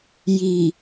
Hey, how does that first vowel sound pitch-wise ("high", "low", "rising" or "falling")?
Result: low